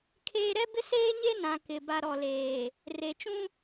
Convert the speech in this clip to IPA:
kʰ eː˦ ɾ ɛ˦ b ɪ˦ s eː˦ ɲ e˦ n ã˨ k ɪ˨ b a˨ ɾ ɔ˨ l eː˨ | r e˨ t͡ʃ ũ˦

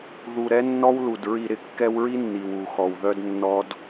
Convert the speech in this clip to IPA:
ð u˨ ɾ ɛ˦ nː ɔ˦ w l u˨ d ɹ i˨ ɾ ɪ˨ kː ɛ˦ w ɹ i˦ nː i˨ w u˨ x ɔ˨ w ð œ˦ d nː ɔ˦ d

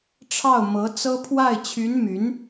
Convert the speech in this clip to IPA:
ʈ͡ʂʰ ɑ˥˩ ʊ̯ m ɤ˧˥ t͡s ɤ˥ pʰ w a˥˩ ɪ̯ t͡ɕʰ y˧˥ n m y˧˥ n

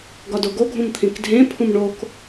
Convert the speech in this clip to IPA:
ɡ ɒ d o ɡ o ɡʱ ũ m t̪ʰ ĩ k dʱ ẽ pʰ ũ m ɳ o k

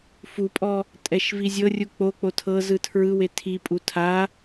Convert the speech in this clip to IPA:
f u pʼ ɔ | tʼ ɛ ʃ v i zʲ ɤ rʲ u k͡p o k͡p o tʰ ɤ z ɯ tʰ ɹ ɯ w e tʰ i pʼ u tʰ a

